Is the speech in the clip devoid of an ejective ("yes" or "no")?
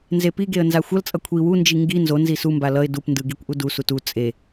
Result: no